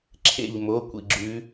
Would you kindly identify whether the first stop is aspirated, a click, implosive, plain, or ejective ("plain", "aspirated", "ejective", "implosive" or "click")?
click